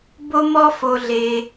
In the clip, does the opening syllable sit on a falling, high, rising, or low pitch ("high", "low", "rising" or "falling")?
high